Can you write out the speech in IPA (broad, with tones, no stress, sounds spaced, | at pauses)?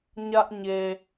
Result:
ɲ ä˦ ʔ ɲ e˨